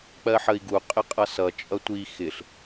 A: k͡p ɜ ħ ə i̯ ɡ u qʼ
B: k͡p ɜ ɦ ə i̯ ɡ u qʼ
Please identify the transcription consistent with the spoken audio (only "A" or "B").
A